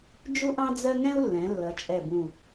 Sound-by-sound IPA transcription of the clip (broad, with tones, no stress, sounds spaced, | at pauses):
d͡ʒ u˥ ʔ ɑ̃˥ d͡z ɜ˥ ŋ ɛ̃˥ u̯ lː ɛ̃˩˧ lː ʌ˩˧ t͡ʃʼ ɛ˧˩ b ũ˧˩